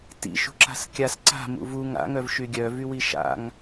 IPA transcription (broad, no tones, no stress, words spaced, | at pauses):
tḭ ʃṳǁa̤skʲas ǀa̤ mṵvuŋ a̰ ŋœvʃyɡʲœ vywiʃa̰ŋ